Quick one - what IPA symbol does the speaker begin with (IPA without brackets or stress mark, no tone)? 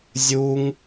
zʲ